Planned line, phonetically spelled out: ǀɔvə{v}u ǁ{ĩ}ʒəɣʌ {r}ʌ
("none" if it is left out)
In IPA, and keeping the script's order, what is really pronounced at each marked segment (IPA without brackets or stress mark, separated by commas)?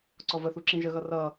θ, ĩ, r